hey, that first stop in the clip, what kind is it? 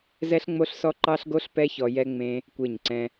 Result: click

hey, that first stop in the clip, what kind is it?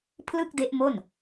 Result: aspirated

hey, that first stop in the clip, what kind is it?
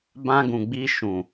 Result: plain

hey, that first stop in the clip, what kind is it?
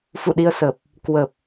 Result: implosive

